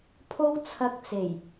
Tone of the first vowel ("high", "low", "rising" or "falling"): high